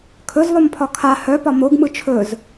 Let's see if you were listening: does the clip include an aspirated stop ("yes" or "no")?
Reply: yes